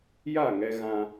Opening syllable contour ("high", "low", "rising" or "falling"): falling